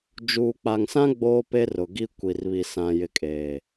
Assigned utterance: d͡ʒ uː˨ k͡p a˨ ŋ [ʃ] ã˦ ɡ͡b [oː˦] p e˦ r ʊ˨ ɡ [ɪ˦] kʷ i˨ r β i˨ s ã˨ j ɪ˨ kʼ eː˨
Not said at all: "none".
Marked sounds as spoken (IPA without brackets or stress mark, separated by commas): s, oː˦, i˦